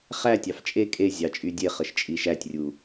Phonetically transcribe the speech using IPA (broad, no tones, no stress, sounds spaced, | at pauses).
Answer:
χ æ tʲ ɑ f t͡ʃʼ e kʼ e zʲ ɑ t͡ʃʼ y dʲ e χ ə ʃ t͡ʃʼ i ʃ æ tʲ rʲ u